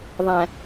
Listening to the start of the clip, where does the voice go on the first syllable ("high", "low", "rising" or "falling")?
low